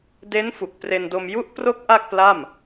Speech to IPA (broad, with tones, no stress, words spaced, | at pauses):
de˦˥n fu˨˩k̚pre˧ndo˧m ju˦˥ʔpro˦˥k̚ ʔa˥˩k̚pla˥˩m